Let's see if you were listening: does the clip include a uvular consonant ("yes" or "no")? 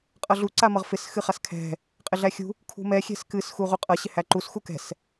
yes